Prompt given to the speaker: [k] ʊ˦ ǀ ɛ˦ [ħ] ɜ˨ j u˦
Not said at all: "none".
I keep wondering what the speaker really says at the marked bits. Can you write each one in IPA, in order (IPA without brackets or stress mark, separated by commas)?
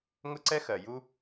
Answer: ŋ, x